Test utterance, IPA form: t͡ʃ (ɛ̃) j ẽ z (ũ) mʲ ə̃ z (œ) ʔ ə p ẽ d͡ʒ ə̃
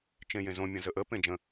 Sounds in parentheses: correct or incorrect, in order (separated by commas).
incorrect, incorrect, incorrect